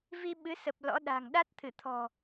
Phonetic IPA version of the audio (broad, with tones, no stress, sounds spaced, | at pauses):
v i˧ ɓ ɨ˨˦ s ə˨˩ p̚ l ɔ̰˧˥ ɗ a̤˨˩ ŋ ɗ a˦˥ t̚ t̪ʰ ɨ˧˩ t̪ʰ ɔ̤˨˩